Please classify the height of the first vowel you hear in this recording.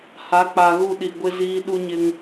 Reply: low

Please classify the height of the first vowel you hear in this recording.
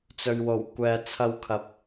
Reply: mid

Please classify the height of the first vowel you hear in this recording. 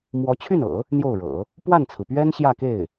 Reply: mid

